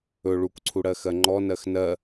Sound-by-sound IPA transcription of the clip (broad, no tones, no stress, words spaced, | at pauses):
ɵ ɭukʷǀʰu ɽɜxɜŋ͡ǃɔnɜx nɜ